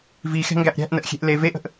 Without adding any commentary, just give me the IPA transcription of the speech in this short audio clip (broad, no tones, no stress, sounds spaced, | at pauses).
v i x ɛ̤ ŋ ɡ æ ʔ ɾʲ æ̤ ʔ n ə ʔ xʲ e̤ ʔ l e v e ʔ ə̤ ʔ